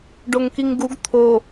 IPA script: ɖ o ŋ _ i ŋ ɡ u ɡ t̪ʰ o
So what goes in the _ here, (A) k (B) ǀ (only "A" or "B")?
A